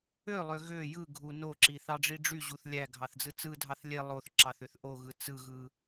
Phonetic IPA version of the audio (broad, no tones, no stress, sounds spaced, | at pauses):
ø lˠ ø ɣ ø j ɯ ɡʱ u n o ǁ i θ ɑ ɖ͡ʐ i ɖ͡ʐ y ʑ u θ lʲ æ ɡʱ ɑ θ d͡z ɯ t͡s ɯ dʱ ɑ θ lʲ e lˠ o θ ǁ ɑ θ ø θ ʔ o ɣ ɯ t͡s ɯ ɣ ɯ